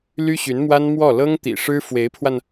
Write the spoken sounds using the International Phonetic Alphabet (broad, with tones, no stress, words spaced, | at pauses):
ly˥ɕy˧˥nmwa˥nmwɔ˥˩ lɤ˥ŋt̪ḭ˨˩ ʂɻ̩˥fwe˧˥ɪ̯pʰwa˧n